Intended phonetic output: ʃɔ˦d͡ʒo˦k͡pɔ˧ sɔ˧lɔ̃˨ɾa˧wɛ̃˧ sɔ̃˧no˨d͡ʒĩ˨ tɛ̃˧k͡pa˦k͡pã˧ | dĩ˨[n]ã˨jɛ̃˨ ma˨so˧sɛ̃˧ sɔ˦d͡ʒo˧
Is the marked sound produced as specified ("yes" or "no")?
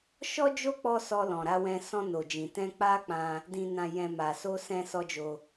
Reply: yes